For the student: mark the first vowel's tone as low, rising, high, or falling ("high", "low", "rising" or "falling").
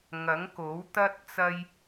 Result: rising